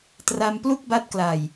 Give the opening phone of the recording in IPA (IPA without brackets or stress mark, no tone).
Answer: t